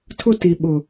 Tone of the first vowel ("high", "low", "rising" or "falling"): high